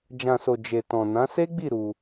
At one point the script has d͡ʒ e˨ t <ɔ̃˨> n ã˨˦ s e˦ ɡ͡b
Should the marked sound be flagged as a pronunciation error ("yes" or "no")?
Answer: no